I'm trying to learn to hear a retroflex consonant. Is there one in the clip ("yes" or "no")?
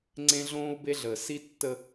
no